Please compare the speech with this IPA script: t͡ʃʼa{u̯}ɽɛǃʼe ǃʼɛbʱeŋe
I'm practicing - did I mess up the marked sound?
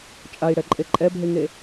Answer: yes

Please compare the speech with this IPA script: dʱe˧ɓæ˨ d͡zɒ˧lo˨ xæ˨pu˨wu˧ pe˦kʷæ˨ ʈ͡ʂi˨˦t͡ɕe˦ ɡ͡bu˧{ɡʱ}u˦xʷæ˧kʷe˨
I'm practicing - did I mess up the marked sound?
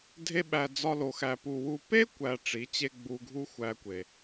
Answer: no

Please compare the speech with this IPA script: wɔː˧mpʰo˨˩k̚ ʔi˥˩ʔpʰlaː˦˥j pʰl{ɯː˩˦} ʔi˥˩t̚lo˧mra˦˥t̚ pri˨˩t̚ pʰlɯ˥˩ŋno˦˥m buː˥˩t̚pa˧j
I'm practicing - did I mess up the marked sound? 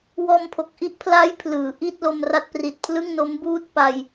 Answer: no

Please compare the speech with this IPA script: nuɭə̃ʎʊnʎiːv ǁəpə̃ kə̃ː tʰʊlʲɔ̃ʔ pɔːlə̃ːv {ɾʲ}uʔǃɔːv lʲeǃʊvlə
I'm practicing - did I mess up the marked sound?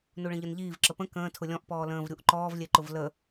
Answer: no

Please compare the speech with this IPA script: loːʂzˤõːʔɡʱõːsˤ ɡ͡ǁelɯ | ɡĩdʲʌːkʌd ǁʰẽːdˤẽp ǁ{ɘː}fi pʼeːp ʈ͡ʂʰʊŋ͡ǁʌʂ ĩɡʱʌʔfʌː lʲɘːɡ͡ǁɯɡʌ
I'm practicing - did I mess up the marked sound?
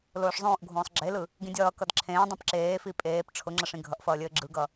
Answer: yes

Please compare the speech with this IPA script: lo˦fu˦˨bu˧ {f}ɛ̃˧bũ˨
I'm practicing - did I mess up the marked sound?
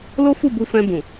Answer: no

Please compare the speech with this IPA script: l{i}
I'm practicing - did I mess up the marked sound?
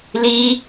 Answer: no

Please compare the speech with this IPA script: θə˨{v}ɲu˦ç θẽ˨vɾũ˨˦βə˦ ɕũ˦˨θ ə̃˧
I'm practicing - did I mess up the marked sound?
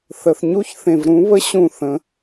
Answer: yes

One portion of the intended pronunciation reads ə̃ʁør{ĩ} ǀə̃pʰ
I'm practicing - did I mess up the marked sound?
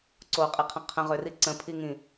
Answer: yes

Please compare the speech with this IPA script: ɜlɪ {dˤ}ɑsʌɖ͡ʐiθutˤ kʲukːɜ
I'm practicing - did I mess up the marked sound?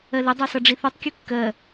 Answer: no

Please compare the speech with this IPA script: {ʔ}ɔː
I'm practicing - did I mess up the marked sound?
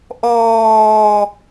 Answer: no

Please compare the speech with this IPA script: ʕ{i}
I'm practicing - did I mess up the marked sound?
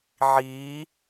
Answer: yes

